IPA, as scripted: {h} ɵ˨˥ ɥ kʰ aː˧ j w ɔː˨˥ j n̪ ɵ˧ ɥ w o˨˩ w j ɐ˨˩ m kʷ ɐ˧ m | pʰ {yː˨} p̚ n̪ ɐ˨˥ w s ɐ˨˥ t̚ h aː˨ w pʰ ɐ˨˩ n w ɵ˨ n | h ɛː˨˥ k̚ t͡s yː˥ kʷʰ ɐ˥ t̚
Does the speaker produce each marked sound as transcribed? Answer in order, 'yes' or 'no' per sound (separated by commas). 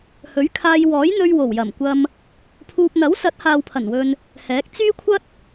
yes, no